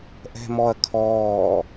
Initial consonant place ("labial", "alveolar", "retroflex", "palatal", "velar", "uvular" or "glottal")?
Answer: glottal